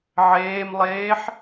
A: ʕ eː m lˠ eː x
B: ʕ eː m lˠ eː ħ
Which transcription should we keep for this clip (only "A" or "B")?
B